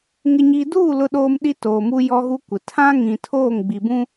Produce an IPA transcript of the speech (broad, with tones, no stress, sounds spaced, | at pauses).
ŋ ɪ˨ ɲ iː˨ d uː˦˨ l ʊ˦ ɗ oː˦ m ɗ i˦ t oː˨ m u˦ j ɔ˦ ɣ u˦ kʷ ɪ˨ tʰ ã˦ ŋ ĩ˨ tʰ oː˦˨ ŋ ɡ͡b i˨ b ũ˦